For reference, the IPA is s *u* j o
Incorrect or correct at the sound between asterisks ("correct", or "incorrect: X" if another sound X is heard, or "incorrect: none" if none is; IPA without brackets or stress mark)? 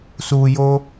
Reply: correct